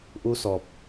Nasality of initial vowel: oral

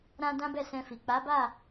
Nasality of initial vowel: nasal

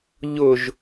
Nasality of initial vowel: oral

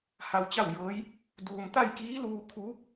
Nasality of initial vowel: oral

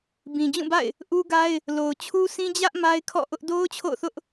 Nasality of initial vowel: nasal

